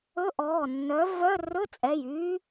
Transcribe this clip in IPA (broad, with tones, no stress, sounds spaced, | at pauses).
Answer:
ɵ˧˥˧ ʔ ɔː˩˧˩ nː œ˨˥ v œ˧˥˧ r ɵ˧˥˧ t͡sʼ ɛ˩˧˩ j yː˦˥